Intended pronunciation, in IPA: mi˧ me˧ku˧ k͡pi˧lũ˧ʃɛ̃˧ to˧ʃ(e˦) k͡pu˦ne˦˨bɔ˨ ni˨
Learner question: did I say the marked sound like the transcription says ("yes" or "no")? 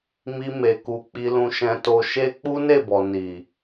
yes